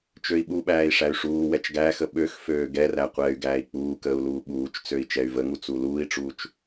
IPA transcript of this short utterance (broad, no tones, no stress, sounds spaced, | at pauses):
t͡ʃ ø i̯ ɓ u ɓ æː i̯ ʂ æ y̯ ʂ uː w ɛ t͡ʃ ɡ æː x ə ɓ ø x f øː ɡ ɛ r æ qʷ ɛː y̯ ɡ æː i̯ k͡p uː k əː u̯ l uː ɓ uː t͡ʃ t͡s ø i̯ t͡ʃ ɛ y̯ v ə ŋ u t͡s u l uː i̯ ʈ͡ʂ uː t͡ʃ